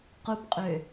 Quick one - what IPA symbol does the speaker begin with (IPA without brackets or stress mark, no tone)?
q